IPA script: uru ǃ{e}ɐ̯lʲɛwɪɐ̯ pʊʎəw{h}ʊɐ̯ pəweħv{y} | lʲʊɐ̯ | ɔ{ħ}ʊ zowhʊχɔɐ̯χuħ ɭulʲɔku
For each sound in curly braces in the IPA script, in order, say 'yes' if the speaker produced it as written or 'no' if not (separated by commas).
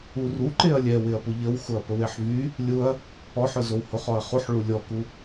yes, no, yes, yes